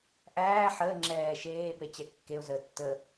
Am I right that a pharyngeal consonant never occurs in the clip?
no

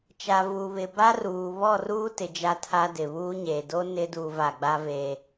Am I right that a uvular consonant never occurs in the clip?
yes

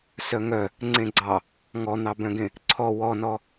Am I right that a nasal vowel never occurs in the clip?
no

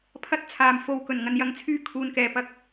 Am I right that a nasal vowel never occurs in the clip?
yes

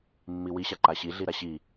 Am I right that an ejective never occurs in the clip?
yes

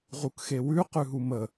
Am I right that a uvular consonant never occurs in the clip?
no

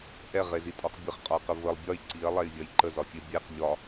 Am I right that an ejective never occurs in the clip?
no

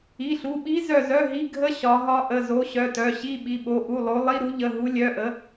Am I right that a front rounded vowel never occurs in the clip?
no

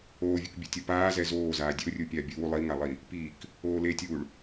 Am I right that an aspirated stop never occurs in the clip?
yes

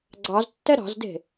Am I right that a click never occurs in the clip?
no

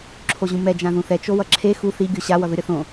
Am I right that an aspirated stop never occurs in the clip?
no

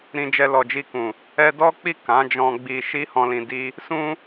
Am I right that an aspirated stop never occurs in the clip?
yes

